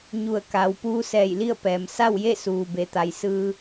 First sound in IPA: ɲ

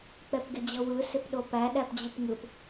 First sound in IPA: k͡p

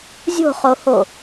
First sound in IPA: zʲ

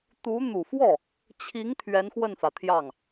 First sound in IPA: t̪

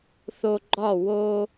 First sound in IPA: θ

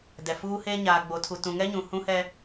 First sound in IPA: d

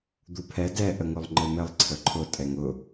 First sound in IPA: d̪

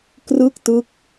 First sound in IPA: k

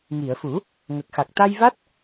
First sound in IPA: ŋ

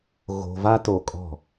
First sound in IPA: ɣ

